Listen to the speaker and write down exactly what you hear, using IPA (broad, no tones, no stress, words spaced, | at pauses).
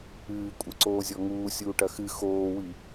ɨːkʷʼɘǀoːzʲɔ ŋuːsʲuːʈɐ xɨ xoːwi